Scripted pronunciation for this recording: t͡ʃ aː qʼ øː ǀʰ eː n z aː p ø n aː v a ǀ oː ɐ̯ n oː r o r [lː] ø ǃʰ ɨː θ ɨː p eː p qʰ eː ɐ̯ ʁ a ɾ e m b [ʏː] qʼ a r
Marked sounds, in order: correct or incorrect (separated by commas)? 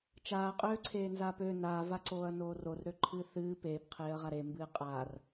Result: incorrect, incorrect